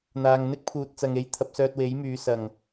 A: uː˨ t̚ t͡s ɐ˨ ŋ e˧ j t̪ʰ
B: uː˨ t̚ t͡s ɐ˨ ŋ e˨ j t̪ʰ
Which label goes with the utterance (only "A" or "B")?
A